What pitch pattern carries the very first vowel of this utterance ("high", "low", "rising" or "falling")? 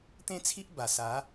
high